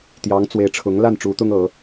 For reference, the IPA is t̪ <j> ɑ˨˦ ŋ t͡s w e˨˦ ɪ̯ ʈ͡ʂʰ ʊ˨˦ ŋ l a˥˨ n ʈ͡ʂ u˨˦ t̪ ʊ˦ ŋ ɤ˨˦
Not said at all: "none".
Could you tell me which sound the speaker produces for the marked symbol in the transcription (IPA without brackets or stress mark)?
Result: j